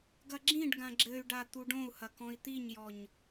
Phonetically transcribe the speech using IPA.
ɡ ɐ ɡ͡ǁ ĩ ɖ ɡ ã ɡ͡ǁ ɘ y̯ ɖ a t̪ u ɖ õ u̯ h ɐ k ɔ̃ i̯ t̪ i ɲ j ɔ ɲ

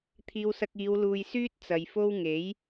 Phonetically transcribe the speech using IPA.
t̪ʰ iː˧ w s ɐ˧ k̚ iː˨˧ w l uː˨ j s yː˥ t̚ t͡s ɐ˨ j f o˥ w ŋ e˨˥ j

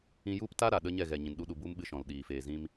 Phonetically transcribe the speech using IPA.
ĩ˧ j u˦ p t a˦ ɾ a˨ ɗ ə˦ ɲ ɛ˦˨ ɣ ɛ˨ ɲ ĩ˨ n ɗ u˧ ɗ u˨ b u˦ m ɓ ɨ˧ ʃ ɔ̃˨ l ɗ iː˨ f eː˨ z ĩ˧ m

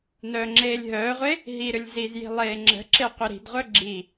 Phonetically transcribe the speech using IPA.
n œː ŋ͡ǁ eː lʲ ɦ œː ʁʷ e | ɦ i ɾ ʏ lʲ z i z j i̤ lˠ eː ŋ͡ǁ ə̤ ǁ e qʷ i ɾ i̤ d ʁʷ œ ɡ͡ǁ i

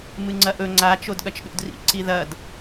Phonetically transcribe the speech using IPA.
m ɨ ŋ͡ǀ ɐ ʔ ɵ ŋ͡ǀ a t͡ʃ o d ɠ ɐ t͡ʃ ɗ ṵ d r ḭ ǀ i ð ɐ d

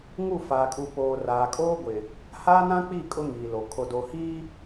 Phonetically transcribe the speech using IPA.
ŋ u˦˨ f aː˨ kʼ u˨ p oː˨ r aː˨ kʼ oː˦ ɡʷ ɪ˨ | h aː˦ n ã˦ k͡p i˦˨ kʼ ʊ˦ ŋ iː˨ l o˨ kʰ o˨ d o˨ h iː˦

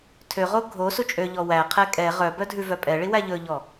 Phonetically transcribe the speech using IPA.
tʰ ø ʁ o ɡʱ o s u t͡ʃʼ ø ʎ ɔ w æ qʰ ɛ kʼ ɛ ʁ œ b œ dʱ ʉ v œ pʼ ɛ ɭ i w æ ʎ ɵ ʎ ɔ

